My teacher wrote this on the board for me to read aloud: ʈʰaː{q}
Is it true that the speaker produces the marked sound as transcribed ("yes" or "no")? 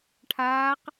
yes